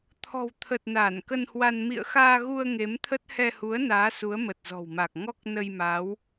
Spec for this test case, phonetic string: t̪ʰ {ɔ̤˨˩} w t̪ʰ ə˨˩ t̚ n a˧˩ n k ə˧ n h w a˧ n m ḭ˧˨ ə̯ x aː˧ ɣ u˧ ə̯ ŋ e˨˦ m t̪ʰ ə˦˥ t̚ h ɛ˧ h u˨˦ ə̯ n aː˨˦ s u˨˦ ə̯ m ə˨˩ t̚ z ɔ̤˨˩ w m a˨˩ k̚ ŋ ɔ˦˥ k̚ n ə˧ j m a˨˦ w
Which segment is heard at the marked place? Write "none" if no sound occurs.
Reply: ɔ̤˨˩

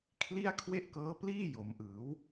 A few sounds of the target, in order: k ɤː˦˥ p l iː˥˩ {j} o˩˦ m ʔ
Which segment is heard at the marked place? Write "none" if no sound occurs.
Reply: j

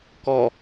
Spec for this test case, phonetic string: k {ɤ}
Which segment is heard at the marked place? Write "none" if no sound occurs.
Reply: ɔ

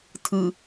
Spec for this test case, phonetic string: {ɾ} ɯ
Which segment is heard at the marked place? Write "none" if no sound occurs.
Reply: tʰ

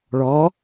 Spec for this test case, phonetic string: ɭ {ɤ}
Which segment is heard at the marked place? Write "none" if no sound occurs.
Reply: ɔ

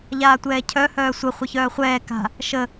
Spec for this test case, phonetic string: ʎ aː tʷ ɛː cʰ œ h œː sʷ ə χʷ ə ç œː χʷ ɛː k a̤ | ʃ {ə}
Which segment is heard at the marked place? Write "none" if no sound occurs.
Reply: ə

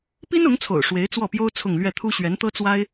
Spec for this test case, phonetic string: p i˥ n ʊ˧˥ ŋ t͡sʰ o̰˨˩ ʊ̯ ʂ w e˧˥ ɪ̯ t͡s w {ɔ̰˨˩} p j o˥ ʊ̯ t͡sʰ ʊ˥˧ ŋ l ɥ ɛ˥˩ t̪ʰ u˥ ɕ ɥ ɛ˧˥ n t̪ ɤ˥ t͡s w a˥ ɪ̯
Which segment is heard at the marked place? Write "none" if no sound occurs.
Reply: ɔ˥˩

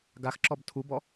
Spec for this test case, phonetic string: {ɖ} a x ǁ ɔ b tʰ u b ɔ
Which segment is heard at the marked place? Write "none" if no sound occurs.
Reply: ɡ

